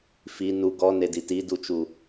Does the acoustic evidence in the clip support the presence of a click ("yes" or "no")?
no